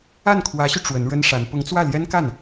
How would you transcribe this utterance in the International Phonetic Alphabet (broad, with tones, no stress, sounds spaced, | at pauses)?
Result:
a˥˩ n kʰ w ä˧˥ ɕ y˧ ʈ͡ʂ w ə˧˥ n ɻ ə˥ n ʂ a˧˥ n p ʊ˧˥ ŋ t͡s w ä˥˩ l j ɛ˥ n k a˥˩ n